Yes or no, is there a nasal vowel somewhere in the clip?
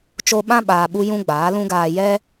yes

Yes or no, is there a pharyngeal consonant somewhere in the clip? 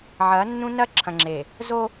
yes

